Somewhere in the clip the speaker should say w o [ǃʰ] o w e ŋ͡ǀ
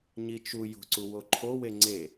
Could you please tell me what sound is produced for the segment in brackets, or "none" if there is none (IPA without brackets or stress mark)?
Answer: ǃʰ